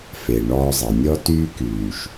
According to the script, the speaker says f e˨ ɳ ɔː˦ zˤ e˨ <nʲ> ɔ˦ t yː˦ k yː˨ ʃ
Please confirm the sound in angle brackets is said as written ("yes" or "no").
yes